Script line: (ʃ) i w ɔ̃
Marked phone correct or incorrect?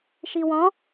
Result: correct